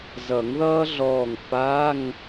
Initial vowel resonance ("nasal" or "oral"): oral